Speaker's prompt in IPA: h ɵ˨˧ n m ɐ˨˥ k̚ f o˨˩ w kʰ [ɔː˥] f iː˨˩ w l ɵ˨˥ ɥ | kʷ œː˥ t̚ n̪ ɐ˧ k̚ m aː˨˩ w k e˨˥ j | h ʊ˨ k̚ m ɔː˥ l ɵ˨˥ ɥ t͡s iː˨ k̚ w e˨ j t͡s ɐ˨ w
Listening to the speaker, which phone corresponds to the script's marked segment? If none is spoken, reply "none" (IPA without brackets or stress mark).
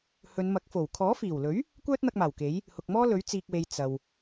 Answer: ɔː˨˥